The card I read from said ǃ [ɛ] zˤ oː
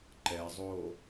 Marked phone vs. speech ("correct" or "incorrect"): correct